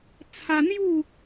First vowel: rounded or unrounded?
unrounded